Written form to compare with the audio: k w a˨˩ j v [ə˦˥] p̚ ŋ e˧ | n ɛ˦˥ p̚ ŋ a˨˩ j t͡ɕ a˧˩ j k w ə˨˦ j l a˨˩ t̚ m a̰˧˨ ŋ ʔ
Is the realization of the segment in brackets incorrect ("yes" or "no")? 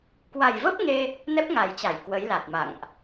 no